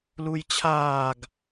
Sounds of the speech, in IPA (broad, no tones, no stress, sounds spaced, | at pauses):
l u j t͡ɕʰ aː ɡ